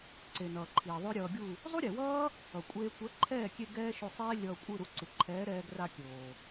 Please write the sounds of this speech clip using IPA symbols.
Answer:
ǀ e˨ n ʌː˨ ǃʰ iː˨ ðˤ o˦ ɾʲ ʌː˧ ɡʲ u˦˨ | zˤ u˦ ɾʲ e˨ w ʌː˦ | ʌ˨ kʷʼ eː˧ kʷ ɛ˨˦ ǃʰ ɛː˦˨ kʲ e˧ ɡ ɛː˦ ʃ o˧ sˤ eː˦ lʲ ʌː˧ kʷʼ ɯ˦˨ ɾ u˧ ǀ ɯ˨ ǃʰ ɛː˨˦ ɾ ɛː˧ ɡ r a˧ kʲ oː˨

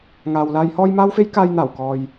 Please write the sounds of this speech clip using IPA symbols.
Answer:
ŋ aː˨ w l aː˨ j h ɔː˧ j m aː˥ w f e˥ j k aː˧ j n̪ aː˨˩ w k ɔː˨ j

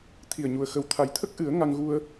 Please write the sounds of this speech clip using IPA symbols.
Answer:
t̪ʰ i˨˩ ə̯ ɲ u˨˩ ə̯ x ə˨˩ w t̪ʰ a˨˩ j t̪ʰ ə˦˥ k̚ ʔ ɨ˨˩˦ ə̯ ŋ a˧ ŋ ɣ u˧ ə̯

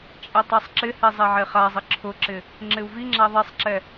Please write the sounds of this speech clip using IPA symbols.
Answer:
t͡ʃʼ ɛ tˤ a sˤ ǁ ɪ h ɛ zˤ ɛ ʕ e χ a zˤ ɪ ǁʰ ʊ ǁ ɪ | ŋ͡ǁ ɪ u̯ v i ŋ͡ǁ a ðˤ ɛ sˤ ǁ ɛ

